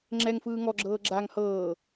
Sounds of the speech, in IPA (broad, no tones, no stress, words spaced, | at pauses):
ŋ͡ǁɛŋfɯː ŋɔɡ͡ǁɤː ɡ͡ǁaŋ hɤː